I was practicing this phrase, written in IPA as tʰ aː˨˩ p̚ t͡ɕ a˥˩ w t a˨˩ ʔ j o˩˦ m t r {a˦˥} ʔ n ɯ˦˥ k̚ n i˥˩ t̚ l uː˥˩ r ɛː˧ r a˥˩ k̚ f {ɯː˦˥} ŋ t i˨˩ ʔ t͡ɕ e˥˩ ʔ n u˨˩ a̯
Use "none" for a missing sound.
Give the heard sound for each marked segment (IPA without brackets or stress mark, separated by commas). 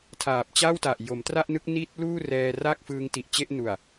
a˥˩, ɯː˦˥